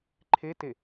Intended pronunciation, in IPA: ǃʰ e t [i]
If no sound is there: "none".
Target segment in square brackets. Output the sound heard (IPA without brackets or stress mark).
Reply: e